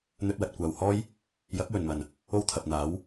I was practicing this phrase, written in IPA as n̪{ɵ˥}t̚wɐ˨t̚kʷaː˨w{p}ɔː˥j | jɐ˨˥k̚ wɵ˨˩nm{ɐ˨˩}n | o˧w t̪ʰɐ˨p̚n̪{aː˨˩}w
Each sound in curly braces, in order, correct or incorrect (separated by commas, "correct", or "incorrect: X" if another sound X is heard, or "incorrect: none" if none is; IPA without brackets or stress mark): incorrect: ɵ˧, incorrect: h, correct, incorrect: aː˨˥